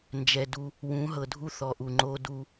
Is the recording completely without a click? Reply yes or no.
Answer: no